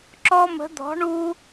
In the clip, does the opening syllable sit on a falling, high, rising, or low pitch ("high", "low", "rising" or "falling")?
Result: high